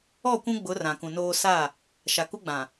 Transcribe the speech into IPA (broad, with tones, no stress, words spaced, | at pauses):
ɔ˦˨kʷũ˦ ɡ͡bʊ˨˦ rã˨kũ˨noː˦ sa˦˨ | ʃa˨ku˦ɡ͡bã˨